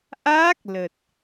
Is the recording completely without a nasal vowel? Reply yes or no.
yes